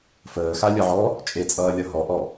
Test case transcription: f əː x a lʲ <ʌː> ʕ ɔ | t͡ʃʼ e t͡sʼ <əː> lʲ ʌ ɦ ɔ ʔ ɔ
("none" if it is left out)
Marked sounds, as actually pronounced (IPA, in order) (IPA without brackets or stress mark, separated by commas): ʌ, ʌː